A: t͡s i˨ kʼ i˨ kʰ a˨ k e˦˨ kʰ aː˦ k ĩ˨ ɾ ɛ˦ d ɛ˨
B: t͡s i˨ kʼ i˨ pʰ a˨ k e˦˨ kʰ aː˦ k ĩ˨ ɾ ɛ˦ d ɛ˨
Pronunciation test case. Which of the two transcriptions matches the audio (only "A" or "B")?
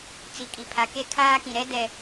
B